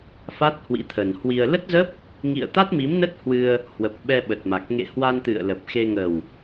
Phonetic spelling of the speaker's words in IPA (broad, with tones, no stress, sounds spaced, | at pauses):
f a˦˥ t̚ h w ḭ˧˥ t̪ʰ ə˨˩ n h w i˧ ə̯ l ə˦˥ t̚ z ə˦˥ p̚ | ŋ ḭ˧˨ ə̯ t̪ a˦˥ t̚ m i˨˦ m n ə˦˥ t̚ h w ɨ˧ ə̯ | h w ə˨˩ p̚ ɓ ɛ˧ ɓ ə˨˩ t̚ m a˨˩ k̚ ŋ ḛ˧˨ h w a˧ n t̪ ɨ̰˧˨ ə̯ l ə˨˩ p̚ x e˧ ŋ ə˨˩ w